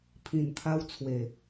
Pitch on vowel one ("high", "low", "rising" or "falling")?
low